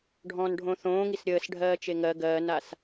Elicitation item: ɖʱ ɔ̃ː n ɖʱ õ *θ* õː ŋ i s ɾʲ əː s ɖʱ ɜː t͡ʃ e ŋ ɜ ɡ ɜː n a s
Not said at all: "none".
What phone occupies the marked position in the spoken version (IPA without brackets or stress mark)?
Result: θ